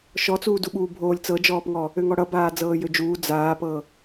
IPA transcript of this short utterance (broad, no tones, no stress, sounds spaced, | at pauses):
ʃ ɔ t͡s uː d u ɓ uː bʱ oː lʲ t͡s ɤ d͡ʒ ɔː p ŋ ɔ | ø ŋ ɔ ɽ ʌ b aː d͡z ɤː j ø d͡ʒ uː d͡z aː p ɤ